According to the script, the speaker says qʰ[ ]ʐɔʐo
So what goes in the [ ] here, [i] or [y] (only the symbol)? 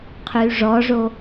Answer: y